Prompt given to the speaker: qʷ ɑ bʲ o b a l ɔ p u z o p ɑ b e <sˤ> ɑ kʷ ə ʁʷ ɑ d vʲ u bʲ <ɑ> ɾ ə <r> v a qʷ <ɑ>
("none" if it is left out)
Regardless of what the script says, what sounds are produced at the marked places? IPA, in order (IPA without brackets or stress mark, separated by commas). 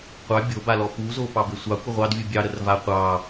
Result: sʷ, ɑ, r, ɑ